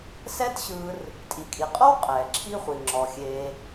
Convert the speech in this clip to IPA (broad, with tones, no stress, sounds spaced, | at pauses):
s ɛː˥ t ɕ ɯː˧ r | tʼ i˩ kʼ i˩ qʼ ɔ˥ w qʼ ɛː˩ ǁʰ i˥ χʷ i˩ ŋ͡ǁ ɔ˩ xʲ eː˧